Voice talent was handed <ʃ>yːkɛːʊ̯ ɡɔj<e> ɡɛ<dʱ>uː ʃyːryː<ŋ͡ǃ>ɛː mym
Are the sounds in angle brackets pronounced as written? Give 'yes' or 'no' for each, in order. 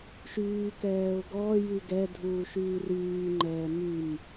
yes, no, yes, yes

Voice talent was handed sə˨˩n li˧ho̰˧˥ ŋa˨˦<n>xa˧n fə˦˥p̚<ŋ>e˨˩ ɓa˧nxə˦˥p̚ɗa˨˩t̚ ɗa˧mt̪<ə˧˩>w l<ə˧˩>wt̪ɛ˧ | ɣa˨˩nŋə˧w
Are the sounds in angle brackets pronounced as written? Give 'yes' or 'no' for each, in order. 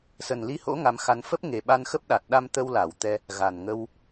no, yes, no, no

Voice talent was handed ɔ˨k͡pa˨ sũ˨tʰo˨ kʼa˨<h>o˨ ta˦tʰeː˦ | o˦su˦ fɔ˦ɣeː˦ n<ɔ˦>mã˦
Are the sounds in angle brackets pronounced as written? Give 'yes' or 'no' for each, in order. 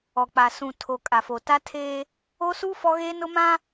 no, no

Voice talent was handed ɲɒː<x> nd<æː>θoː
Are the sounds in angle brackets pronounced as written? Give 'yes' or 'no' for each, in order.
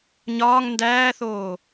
no, yes

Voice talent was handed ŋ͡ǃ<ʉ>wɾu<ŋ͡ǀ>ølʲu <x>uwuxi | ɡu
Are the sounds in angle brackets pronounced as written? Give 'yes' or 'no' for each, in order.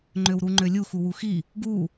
no, no, yes

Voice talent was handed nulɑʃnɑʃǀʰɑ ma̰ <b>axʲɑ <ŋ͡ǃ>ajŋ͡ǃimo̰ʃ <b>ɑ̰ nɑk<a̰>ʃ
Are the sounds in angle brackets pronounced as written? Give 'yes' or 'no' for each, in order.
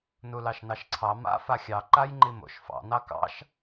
no, no, no, no

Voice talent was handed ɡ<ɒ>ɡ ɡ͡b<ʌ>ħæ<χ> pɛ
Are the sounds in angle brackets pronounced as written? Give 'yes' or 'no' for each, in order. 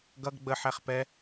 no, no, yes

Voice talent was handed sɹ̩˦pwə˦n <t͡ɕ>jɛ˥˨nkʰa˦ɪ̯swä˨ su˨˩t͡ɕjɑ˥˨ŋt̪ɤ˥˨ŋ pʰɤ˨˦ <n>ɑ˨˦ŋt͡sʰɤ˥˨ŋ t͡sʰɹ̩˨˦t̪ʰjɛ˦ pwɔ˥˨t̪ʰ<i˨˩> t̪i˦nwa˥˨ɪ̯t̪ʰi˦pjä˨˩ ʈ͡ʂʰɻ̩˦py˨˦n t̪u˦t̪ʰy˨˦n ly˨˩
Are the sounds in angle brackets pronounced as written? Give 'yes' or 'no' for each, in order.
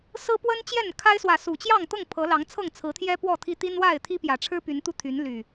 yes, no, no

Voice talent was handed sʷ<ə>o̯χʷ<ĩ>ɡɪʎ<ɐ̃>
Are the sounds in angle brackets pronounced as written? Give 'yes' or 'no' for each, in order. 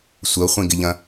yes, yes, yes

